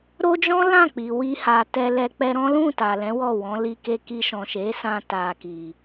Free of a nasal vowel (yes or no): no